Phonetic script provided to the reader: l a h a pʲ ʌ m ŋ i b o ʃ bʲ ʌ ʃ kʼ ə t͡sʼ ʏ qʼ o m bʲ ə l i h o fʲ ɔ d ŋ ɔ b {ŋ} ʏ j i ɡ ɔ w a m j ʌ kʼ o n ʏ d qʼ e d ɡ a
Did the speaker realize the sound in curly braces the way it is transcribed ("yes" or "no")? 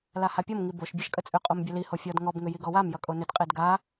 yes